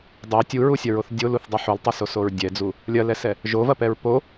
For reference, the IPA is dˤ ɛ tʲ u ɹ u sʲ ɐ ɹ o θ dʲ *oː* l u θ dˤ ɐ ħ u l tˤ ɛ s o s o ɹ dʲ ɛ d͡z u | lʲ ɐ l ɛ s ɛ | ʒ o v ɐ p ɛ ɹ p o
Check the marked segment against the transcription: incorrect: o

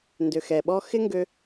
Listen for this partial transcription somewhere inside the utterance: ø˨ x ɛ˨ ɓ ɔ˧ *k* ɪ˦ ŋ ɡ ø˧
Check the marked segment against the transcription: incorrect: x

